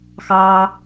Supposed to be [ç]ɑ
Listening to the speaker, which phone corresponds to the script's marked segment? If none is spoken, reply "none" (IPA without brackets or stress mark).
x